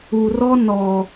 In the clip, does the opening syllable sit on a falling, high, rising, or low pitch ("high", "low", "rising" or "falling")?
low